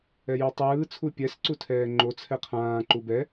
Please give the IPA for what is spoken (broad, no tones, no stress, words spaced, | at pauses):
ɛjitˤɯː t͡sʰupʲɛs ǀutʰɛːŋ͡ǃo t͡sʰɛqʰãː ǃubɛ